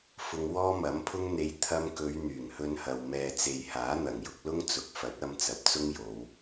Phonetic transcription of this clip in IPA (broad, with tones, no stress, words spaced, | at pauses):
fʊ˧ŋ wɔː˥mɐ˨˥mpʰʊ˥ŋ n̪e˨˧j t̪ʰɐ˧mkɵ˨˧ɥ n̪yː˨˩ŋhɵ˧nhɐ˨w mɛː˨ t͡se˨jhaː˨˥n̪ɐ˨˩ŋjʊ˧k̚ lʊ˥ŋt͡sʊ˨˥k̚fɐ˨˥t̚ɐ˧m t͡sɐ˨p̚t͡sʊ˥ŋjo˨˧w